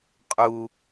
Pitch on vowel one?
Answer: high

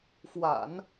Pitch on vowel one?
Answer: low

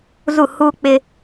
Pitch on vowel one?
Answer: falling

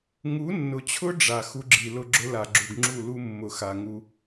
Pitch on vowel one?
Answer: rising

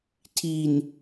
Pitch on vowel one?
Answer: low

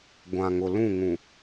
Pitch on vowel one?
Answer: low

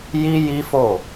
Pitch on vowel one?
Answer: high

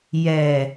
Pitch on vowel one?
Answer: low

